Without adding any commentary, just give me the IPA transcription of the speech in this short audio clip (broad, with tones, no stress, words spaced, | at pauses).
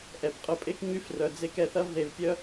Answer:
ʔɛ˨pqʼʊ˧pʼe˦k ɲy˦frœ˧d͡ze˦kɛ˦ θɐ˦vðe˧vpʲœ˦